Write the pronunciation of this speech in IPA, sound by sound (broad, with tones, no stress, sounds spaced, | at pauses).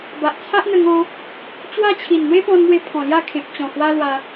b a˨ ʔ t͡sʰ a˦ ʔ n̪ ə˧ ŋ ɔ̃˧ | t͡ɕ w a˥˧ t͡ɕʰ i˨˩ n n̪ w e˦ p ɔ̃˧ n m w e˧ pʰ ɔ̃˨˩ l j a˥˧ kʰ ẽ˨ p̚ t͡ɕ ɔ̃˨˩ h w a˦ l w a˧